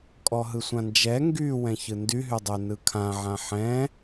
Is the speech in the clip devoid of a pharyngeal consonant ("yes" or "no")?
no